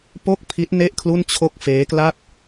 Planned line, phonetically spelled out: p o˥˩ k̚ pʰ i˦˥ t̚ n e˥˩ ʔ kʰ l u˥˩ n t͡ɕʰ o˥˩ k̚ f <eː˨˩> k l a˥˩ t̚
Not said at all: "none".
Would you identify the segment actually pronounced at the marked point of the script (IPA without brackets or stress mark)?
eː˦˥